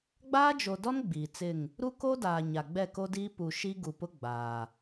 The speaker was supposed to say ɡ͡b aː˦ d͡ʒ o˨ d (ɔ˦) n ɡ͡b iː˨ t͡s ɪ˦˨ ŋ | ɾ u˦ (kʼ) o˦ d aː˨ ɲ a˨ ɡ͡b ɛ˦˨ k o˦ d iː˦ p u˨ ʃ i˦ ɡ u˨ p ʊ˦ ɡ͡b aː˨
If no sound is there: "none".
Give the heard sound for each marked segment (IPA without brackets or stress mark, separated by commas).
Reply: ɔ˦, k